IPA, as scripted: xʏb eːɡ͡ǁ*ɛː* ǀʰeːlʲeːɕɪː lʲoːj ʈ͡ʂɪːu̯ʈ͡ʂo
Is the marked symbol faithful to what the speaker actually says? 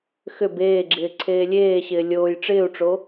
no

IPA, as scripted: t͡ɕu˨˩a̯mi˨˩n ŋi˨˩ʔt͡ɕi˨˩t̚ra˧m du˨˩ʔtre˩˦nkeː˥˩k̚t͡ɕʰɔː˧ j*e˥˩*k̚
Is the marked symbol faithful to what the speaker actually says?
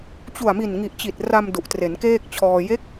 no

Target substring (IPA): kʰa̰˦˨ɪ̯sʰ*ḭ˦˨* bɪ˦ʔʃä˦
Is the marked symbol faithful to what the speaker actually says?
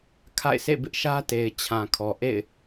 no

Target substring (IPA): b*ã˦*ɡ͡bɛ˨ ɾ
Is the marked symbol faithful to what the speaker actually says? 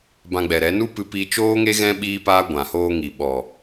no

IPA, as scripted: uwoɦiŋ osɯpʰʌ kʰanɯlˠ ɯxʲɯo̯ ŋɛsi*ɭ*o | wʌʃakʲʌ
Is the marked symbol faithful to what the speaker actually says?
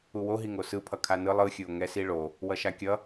yes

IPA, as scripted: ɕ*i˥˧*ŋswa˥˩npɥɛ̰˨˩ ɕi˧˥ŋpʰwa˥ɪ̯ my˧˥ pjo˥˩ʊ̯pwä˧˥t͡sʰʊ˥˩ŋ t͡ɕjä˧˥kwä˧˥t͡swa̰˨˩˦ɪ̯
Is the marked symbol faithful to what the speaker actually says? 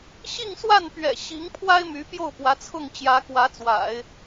yes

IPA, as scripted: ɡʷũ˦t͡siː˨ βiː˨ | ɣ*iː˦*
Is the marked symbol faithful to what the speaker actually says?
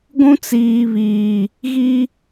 no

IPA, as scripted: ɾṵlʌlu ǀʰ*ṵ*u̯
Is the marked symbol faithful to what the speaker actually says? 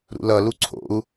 no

